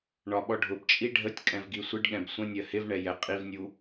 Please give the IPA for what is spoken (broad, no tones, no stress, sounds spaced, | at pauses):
ɳ ɒ ɓ ɔ ɖʱ ʊ b t͡ʃʼ i ɖʱ ə tʲ kʼ ɛ̃ v ɡ i sʷ ɪ ɖ ɠ ɛ̃ b sʷ ə̃ nʲ ɜ h ɪ v ɳ ɛ j ɛ qʼ i v nʲ u